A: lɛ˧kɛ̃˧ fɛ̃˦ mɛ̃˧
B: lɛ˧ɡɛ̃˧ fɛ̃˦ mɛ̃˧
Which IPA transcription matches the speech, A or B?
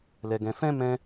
B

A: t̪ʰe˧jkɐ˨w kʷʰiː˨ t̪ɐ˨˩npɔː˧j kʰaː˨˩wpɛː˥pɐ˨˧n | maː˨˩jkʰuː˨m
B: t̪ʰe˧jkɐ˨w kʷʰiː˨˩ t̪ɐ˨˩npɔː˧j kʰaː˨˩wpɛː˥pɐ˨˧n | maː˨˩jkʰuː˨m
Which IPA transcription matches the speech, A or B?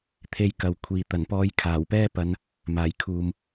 A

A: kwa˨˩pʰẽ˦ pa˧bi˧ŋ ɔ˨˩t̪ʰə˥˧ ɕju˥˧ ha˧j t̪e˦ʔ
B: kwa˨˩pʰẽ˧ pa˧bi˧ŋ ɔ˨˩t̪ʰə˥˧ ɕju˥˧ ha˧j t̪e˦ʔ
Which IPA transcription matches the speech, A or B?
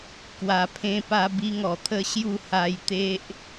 B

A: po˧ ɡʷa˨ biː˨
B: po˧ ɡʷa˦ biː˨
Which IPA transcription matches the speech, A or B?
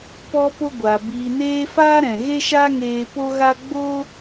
A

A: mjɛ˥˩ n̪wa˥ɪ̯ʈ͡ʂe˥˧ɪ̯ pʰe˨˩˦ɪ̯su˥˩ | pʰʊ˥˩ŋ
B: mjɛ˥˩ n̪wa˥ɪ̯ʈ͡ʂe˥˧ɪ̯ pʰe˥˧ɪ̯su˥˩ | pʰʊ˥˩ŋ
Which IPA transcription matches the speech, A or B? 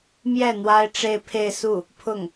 B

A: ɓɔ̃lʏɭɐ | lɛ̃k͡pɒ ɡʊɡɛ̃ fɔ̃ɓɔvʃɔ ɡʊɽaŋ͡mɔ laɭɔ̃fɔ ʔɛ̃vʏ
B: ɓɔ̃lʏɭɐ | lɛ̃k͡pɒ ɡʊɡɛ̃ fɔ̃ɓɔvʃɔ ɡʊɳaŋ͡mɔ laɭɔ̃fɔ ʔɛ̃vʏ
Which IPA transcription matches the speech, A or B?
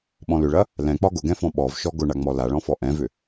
B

